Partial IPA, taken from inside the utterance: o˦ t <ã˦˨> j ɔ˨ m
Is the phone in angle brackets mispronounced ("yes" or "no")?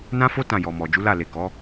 no